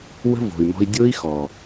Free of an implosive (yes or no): yes